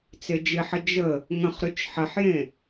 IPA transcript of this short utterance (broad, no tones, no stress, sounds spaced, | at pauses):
t͡s e d͡ʒ ɪ ħ ə d͡ʒ ə | ŋ ə̃ χ ɾ y t͡ʃ ħ ə ħ j ẽ